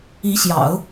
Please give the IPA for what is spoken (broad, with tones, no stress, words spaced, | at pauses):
i˧˥ɕjɑ̰˨˩˦ʊ̯